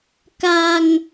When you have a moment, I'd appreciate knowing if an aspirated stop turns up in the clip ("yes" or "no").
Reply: no